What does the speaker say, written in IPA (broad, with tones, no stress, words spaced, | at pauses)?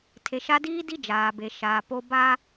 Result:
tʰe˨ʃa˦ diː˦di˦ d͡ʒaː˨be˨ʃaː˨po˦ baː˦